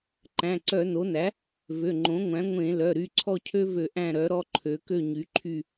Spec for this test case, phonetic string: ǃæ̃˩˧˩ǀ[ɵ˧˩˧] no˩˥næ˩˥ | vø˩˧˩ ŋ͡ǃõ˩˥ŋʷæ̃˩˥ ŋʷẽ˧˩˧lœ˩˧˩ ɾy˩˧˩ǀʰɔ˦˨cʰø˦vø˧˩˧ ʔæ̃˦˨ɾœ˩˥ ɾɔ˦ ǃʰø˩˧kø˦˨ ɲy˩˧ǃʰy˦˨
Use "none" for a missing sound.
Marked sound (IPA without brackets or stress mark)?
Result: œ˧˩˧